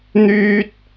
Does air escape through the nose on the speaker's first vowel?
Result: no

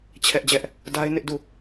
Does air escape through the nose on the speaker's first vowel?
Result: no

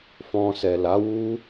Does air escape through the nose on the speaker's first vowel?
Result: yes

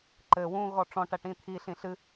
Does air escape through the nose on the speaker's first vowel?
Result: no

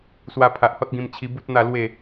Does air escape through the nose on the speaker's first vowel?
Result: no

